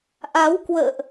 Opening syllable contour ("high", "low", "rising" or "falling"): rising